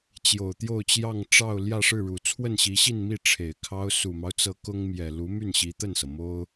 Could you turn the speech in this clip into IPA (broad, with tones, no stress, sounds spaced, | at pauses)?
t͡ɕ j o˨˩ ʊ̯ t̪ j o˥˧ ʊ̯ t͡ɕ j ɑ˥˧ ŋ ʈ͡ʂ ɑ˥˧ ʊ̯ l j ä˥˧ ʂ ɻ̩˥˩ ɻ u˨˩ t͡sʰ w ə˥˩ n ɕ i˧˥ ɕ i˥˧ n m i˥˩ ʈ͡ʂʰ e˨˩ ɪ̯ kʰ ɑ˥ ʊ̯ s u˨˩ m ɑ˦ ʊ̯ t͡s ɤ˧˥ k ʊ˥ ŋ m j ɛ˨˩ l u˧˥ m y˥˩ n ɕ i˧˥ t̪ ə˥˩ n s ɤ˩ m o˥ ʊ̯